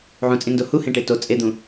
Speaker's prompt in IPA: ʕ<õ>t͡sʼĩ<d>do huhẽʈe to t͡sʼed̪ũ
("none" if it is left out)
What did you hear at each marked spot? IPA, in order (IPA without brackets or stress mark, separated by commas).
ũ, n